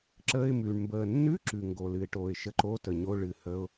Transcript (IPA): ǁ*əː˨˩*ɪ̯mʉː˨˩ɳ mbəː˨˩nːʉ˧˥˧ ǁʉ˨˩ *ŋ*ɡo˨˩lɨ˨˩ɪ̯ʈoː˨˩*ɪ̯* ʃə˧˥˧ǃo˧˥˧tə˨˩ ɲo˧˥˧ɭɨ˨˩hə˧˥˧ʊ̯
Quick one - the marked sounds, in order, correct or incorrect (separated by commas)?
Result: incorrect, correct, correct